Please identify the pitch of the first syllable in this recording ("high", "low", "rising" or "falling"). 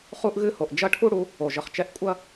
high